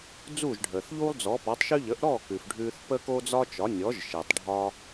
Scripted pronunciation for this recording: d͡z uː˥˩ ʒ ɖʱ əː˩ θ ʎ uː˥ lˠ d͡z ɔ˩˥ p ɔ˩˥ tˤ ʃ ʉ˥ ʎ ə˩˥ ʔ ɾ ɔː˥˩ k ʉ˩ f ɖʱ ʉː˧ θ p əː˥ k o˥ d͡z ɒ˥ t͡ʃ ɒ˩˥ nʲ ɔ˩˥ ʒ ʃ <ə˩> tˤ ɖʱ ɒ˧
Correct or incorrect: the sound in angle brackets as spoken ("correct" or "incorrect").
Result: incorrect